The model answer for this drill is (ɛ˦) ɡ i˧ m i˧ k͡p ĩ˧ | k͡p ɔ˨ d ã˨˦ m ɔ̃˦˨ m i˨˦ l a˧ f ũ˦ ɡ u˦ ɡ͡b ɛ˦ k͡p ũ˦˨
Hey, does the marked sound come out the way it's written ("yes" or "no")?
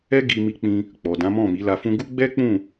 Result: yes